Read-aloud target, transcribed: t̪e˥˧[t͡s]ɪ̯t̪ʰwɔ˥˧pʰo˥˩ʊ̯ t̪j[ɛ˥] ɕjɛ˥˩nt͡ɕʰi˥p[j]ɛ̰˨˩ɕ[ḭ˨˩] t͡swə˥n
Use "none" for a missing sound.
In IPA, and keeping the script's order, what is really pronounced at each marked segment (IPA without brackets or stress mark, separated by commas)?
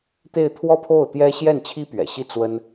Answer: none, ɛ˥, ɥ, i˥˩